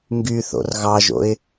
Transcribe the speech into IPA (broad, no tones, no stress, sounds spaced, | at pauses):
ŋ ɡ y θ o̰ r ɣ ɑ ʒ o̰ ɪ̯